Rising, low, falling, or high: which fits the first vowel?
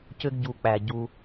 high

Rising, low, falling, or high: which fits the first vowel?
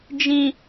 high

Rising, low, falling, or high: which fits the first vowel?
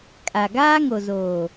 low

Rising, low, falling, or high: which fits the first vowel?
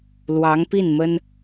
rising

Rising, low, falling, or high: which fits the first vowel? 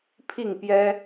falling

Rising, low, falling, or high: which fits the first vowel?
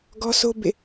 high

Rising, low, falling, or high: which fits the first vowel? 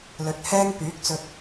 rising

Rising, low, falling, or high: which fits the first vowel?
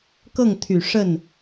falling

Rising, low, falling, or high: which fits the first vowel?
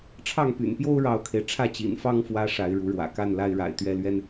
falling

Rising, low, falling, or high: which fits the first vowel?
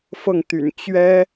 falling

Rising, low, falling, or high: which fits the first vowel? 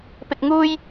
low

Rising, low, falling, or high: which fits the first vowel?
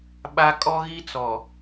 high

